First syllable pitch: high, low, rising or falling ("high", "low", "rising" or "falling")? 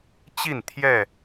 falling